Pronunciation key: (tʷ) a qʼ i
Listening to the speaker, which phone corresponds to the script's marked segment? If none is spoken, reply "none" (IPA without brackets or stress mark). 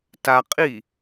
t